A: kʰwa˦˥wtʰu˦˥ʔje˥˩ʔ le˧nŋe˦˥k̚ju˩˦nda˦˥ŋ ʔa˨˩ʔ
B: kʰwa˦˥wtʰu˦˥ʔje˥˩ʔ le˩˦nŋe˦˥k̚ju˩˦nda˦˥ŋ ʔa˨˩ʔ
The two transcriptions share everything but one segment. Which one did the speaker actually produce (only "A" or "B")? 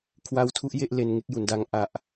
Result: A